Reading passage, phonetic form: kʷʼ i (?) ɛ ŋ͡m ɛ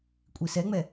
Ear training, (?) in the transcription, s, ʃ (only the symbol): s